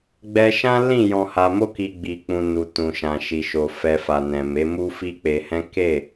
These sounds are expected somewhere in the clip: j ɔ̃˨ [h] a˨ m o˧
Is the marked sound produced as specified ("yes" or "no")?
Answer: yes